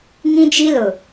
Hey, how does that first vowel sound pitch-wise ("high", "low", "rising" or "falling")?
high